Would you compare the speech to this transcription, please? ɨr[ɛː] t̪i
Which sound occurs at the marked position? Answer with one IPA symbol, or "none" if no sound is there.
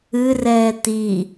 ɛː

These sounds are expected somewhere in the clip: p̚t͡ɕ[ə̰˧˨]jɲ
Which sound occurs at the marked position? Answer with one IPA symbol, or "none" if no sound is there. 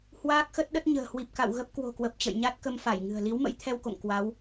ə̰˧˨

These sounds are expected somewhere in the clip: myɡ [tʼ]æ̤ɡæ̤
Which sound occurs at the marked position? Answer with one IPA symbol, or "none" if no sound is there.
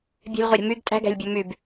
tʼ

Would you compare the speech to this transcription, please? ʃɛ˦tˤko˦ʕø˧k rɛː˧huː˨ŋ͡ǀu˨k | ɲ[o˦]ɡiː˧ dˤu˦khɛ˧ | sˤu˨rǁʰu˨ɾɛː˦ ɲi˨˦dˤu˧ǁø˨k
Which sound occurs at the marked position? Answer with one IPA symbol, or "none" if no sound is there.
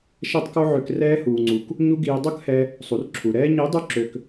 u˦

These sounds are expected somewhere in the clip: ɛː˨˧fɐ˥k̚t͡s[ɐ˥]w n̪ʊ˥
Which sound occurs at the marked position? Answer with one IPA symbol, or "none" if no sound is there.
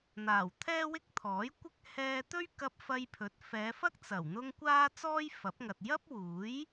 ɐ˨˩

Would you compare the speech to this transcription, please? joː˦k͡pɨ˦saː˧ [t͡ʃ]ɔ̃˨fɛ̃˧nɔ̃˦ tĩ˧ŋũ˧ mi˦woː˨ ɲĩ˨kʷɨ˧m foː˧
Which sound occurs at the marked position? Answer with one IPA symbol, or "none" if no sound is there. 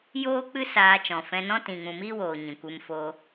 t͡ʃ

